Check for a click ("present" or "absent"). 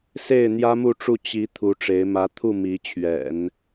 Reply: absent